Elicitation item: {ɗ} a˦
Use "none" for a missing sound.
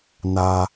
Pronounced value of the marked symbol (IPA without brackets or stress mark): n